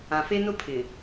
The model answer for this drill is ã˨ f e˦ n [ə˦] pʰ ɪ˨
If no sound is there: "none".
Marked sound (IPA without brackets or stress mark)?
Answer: ʊ˦